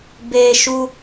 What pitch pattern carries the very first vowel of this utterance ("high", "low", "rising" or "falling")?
high